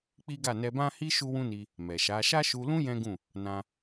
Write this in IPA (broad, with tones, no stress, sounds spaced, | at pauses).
k͡p i˦ ɡ a˦˨ n ɛ˧ b ã˦ h i˦ ʃ u˦ w ũ˦ n i˧ | m ɛ˨ ʃ a˨˦ ʃ a˦ ʃ u˧ l ũ˦ j ɛ̃˦ ɡ ũ˦˨ | n ã˧